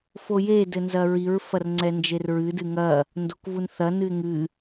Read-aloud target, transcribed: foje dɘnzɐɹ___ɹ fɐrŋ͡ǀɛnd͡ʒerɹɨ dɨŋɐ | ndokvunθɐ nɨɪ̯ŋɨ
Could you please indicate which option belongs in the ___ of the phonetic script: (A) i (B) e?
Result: A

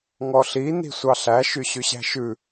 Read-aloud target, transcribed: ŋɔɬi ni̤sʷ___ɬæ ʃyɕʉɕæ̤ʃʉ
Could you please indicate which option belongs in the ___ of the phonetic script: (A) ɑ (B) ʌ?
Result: A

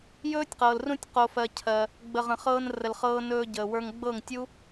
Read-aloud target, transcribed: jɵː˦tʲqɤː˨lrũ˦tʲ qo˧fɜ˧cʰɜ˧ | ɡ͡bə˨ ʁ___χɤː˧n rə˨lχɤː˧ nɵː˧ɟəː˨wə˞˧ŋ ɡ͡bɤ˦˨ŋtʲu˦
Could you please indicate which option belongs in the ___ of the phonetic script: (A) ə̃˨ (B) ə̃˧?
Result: A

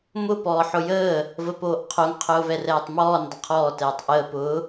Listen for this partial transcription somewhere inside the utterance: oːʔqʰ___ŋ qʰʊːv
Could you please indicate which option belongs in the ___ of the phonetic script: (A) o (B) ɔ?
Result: A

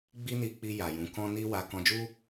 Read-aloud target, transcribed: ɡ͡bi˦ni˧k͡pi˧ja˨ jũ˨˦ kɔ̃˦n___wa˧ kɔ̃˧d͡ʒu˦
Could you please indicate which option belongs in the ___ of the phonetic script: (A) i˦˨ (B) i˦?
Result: B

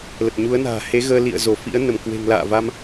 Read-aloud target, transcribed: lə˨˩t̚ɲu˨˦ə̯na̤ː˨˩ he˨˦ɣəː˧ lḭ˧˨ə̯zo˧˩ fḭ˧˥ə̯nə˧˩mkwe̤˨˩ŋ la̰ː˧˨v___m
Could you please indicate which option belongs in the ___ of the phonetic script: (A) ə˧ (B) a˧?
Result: B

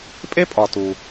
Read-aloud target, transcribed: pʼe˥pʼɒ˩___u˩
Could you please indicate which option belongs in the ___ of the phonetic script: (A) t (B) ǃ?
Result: A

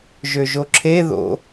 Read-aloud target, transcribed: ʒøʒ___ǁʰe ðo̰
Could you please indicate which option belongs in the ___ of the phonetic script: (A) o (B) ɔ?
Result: A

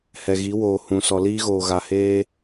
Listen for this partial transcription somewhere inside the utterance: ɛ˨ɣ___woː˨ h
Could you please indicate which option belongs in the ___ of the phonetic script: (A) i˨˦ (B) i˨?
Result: A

